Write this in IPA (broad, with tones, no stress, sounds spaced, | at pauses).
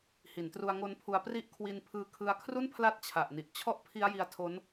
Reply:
h i˩˦ n t r u˧ a̯ ŋ o˦˥ n pʰ u˧ a̯ p r i˦˥ ʔ kʰ w i˧ n pʰ ɯː˧ kʰ ɯ˧ a̯ kʰ r u˥˩ n pʰ l a˦˥ t̚ t͡ɕʰ a˨˩ ʔ n i˨˩ ʔ t͡ɕʰ ɔ˥˩ ʔ pʰ i˦˥ a̯ j i˧ a̯ tʰ o˦˥ n